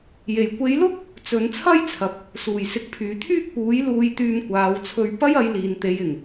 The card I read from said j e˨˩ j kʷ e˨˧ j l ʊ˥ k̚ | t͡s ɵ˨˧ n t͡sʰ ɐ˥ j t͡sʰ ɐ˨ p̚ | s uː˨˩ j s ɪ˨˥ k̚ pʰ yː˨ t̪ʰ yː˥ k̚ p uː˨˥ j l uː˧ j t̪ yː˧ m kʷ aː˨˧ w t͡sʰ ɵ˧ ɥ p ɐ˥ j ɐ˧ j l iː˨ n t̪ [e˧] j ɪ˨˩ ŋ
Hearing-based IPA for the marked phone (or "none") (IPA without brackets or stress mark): e˨˧